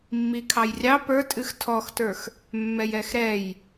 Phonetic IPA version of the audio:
mː i kʰ ɑ j rʲ ɑ p ə˞ tʼ ɨ x tʰ ɔ x t ə˞ x | mː ɛ j ɛ x ɾ ɛ j

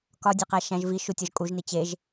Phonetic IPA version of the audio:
k ɒ dʲ e q æ ʃ æ̃ ʒ v i ʃ u tʲ ɒ ʒ kʼ u ʒ n i t͡ɕ e ʒ

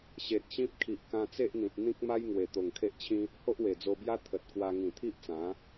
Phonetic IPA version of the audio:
ɕ e˨ t̚ ɕ ĩ˦ p̚ kʰ i˨ ʔ k ã˧ t͡s e˦ ʔ n̪ ĩ˨ t̚ n̪ ĩ˦ k̚ m a˦ j ŋ w e˨˩ t̪ o˨˩ ŋ kʰ e˦ ʔ t͡ɕʰ ĩ˦ | h o˦ ʔ w e˨˩ d͡z o˧ b j a˦ t̪ʰ ə˨ t̚ k w a˧ ŋ ĩ˨˩ t̪ʰ i˦ ʔ t͡s ã˨˦

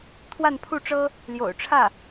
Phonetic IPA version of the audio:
t̪ʰ w a˥˧ n pʰ u˥˩ ʈ͡ʂ ɤ˥ | l j o̰˨˩ ʊ̯ ʈ͡ʂʰ ä˥˩

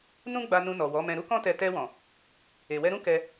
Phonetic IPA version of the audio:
n ũ˦ ɡ͡b a˧ n ũ˧ n ɔ˨ w ɔ˨˦ m ɛ̃˧ ɾ u˦ k ɔ̃˦ t ɛ˧ t ɛ˧ w ɔ̃˨ | e˨ w ɛ˧ ɾ ũ˦ k ɛ˧

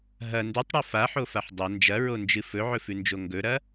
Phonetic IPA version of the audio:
ɦ ɐ n d ʉ tˤ ɽ o f a ħ o f a ħ dˤ ɐ n d͡ʒ ɐ ɹ o n d͡ʒ ɨ f ɵ ʕ ɵ f ʉ n d͡ʒ o ŋ ɡ ɵ ɾ ɐ

